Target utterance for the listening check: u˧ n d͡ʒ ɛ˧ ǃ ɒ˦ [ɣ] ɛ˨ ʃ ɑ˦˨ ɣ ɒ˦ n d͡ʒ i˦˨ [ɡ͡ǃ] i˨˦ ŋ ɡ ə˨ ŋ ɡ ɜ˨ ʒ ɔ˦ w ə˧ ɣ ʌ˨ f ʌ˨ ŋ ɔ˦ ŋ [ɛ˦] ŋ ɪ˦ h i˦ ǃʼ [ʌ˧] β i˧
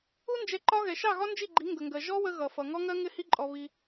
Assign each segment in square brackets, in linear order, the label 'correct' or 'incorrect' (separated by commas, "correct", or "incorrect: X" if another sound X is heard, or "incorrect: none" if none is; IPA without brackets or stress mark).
correct, correct, incorrect: ɜ˦, incorrect: ɔ˧